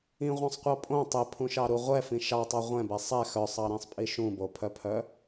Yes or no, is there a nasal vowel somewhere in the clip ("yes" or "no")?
yes